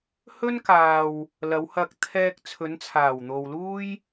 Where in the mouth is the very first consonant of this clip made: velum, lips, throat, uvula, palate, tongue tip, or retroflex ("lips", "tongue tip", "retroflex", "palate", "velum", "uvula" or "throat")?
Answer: throat